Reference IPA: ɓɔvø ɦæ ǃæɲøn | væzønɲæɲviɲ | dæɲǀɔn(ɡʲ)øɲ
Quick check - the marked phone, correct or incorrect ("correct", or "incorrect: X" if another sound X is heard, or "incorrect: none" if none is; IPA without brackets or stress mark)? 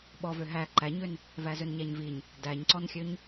incorrect: xʲ